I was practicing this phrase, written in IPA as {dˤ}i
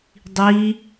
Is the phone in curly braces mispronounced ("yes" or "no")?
no